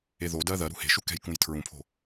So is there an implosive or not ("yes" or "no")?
no